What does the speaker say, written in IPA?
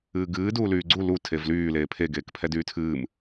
ɨː ɡ ɨː d uː l yː ɡ͡ǀ u l u tʰ e v l yː l eː pʰ e ɡ eː k pʰ ɛ d yː tʰ ɨː m

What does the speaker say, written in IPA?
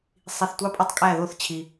sˤ i˨ θ tʷ ɑ˦ pʼ e˦ tˤ kʼ æ˦˨ ð o˦ θ t͡ɕʰ i˨

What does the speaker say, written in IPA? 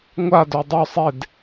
ŋʷ a d œ dˤ œ sˤ e d

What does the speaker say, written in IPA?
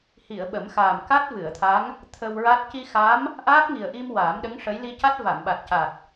h i˨˩˨ ə̯ ɓ ə˨˩˦ m x aː˨˩ m k a˦˥ t̚ v ɨ˨˩˨ ə̯ t̪ʰ a˧˥ ŋ | t̪ʰ ə˧ w ɹ a˦˥ t̚ c i˧ x a˧˥ m | ʔ aː˦˥ p̚ ŋ i˨˩ ə̯ ʔ i˧ m w aː˨˩˦ m ɗ ə˧˥ ŋ ʂ ə˧˥ j l i˧ c a˦˥ t̚ v a˨˩˨ m ɓ a˨˩ t̚ c a˨˩ t̚

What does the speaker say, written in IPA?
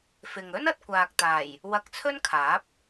f ɪ˨ ŋ ɵ˥ n ɐ˧ t̚ kʷ aː˨ k̚ t̪ aː˨˩ j | w ɐ˧ k̚ t͡sʰ ɵ˥ n kʰ aː˨˥ p̚

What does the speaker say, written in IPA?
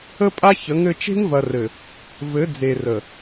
ə˦ pʼ a˦ ç ə˨˦ ŋ ɘ˦ t͡ʃ e̤˦ ŋ v ɐ˨ r ɘ˨ | v ɘ˨˦ d͡z e˨ r ə˨

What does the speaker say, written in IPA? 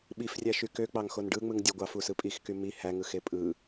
ɓ i f rʲ æ ʃ y k ø k͡p ɑ ŋ x o n ɖ ɯ ŋ͡m ɯ ŋ dʲ u ɡʷ ɑ f u s ɯ pʼ i x k y m i h æ ŋ ɯ x e pʼ ɯ

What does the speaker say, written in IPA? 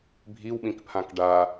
bʱ i w ɓ ĩ k pʰ ã k ɖ a

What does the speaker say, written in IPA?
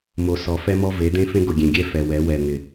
m o˨ s ɔ˨ f ɛ˦ m ɔ˦ v e˨˦ d̪ ẽ˦ f ẽ˦ ɡ ʊ˨ ɡʲ ẽ˨ ɡʲ ɛ˦ f ɛ˨ w ɛ˨˦ w ɛ˨ ŋ ɪ˨

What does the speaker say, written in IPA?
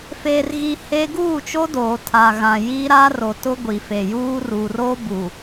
f eː˨ r ɣ i˨ h e˦ ɡ uː˦˨ t͡ʃ o˦ d oː˨ tʰ a˨ ɣ ã˨ j i˦ ɾ a˦ r o˨ t ʊ˦ ɡʷ i˨ f e˨ j uː˦ r uː˨ r oː˦ b u˨

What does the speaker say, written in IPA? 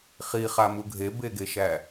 χ i χ a m u ɡʱ e b e ɡ e ʃ æ

